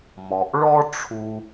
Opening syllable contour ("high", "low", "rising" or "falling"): low